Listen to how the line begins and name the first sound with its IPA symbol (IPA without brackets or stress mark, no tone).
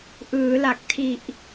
ʔ